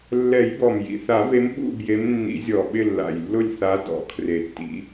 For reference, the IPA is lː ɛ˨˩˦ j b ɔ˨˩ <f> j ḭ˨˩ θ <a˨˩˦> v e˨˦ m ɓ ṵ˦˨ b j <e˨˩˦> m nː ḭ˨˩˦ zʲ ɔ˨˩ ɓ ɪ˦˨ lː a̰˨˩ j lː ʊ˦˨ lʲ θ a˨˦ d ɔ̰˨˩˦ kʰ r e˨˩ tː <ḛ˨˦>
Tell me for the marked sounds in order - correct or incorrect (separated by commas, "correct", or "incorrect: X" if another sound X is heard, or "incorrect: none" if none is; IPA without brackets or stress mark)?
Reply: incorrect: m, correct, incorrect: e˨˦, incorrect: ḭ˨˦